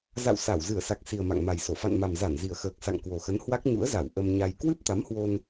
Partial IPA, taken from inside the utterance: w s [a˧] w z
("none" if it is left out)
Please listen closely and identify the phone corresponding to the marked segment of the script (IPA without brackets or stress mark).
a˧˩